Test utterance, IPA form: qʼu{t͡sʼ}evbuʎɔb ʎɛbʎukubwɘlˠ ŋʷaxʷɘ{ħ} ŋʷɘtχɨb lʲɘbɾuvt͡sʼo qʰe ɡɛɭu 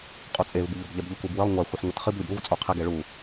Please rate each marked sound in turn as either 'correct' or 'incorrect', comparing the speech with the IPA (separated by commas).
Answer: correct, correct